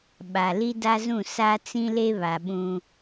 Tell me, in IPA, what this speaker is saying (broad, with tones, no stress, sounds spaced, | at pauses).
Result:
ɓ a˨ l i˦ d a˦ z ũ˦˨ s a˦ t͡s ĩ˦ l e˦ β a˨ ɓ ũ˦